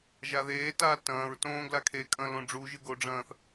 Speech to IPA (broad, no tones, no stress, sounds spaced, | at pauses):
ʒ a ð eː t aː t ɐ̃ː ɹ t õː ɡ l a kʰ e kʼ ɐ̃ l õ ɖ͡ʐ u ʒ ɨ ɡ o ɖ͡ʐ ɐ̃ː θ